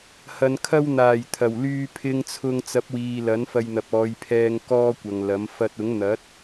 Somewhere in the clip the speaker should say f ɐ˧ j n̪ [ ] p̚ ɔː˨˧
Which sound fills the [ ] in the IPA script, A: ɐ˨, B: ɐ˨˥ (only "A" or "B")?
A